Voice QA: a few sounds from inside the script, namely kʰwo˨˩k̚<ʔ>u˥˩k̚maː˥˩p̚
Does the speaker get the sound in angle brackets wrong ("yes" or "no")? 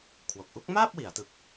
no